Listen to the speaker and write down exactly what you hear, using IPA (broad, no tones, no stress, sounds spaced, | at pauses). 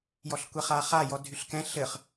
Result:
j ɔ ɬ kʷ ɛ χ a χ a j ɔ dʱ y ɬ k ɛ̃ ɬ ɘ χ